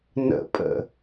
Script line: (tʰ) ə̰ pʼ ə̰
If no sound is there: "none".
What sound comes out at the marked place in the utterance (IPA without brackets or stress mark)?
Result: n